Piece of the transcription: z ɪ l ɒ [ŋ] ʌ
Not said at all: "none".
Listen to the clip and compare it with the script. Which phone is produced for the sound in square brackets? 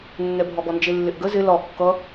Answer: kː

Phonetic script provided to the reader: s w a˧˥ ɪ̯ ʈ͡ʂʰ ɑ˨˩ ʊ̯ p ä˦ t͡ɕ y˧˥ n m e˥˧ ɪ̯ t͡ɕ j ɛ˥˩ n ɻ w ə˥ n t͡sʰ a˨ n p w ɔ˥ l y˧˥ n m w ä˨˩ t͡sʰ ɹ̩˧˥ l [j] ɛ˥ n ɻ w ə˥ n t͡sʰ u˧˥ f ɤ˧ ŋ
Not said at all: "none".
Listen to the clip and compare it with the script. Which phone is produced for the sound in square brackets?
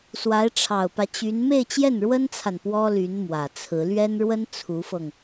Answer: ɥ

